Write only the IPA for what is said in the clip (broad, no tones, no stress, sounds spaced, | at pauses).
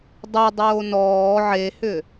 dˤ ʏ dˤ oː n ɔː ʕ e h ʏ